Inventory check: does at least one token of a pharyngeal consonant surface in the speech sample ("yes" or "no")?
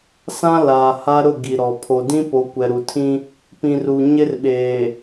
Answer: no